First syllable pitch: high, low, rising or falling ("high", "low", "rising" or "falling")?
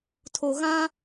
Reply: low